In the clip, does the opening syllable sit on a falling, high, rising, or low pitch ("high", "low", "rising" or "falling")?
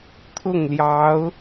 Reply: falling